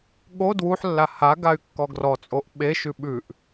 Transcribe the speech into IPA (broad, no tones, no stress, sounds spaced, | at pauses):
ɠ o d w u ħ lː a h a ɡ a y̯ kː ɔ ɡ r ɔ t͡sʼ o ʔ ɓ e ʃ ʉ ɓ ʉ ʔ